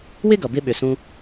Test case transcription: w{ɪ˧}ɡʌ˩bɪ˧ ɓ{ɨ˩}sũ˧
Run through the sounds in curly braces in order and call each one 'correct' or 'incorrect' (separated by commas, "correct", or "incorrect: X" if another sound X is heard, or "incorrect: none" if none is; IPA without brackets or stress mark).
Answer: incorrect: ɪ˥, incorrect: ʏ˩